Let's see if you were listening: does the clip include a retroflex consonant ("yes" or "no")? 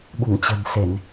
no